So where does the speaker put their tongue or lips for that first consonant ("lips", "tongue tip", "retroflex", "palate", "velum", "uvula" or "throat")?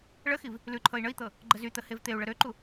retroflex